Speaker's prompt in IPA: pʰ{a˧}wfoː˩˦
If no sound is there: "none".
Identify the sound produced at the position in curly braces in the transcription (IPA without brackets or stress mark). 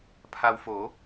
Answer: a˧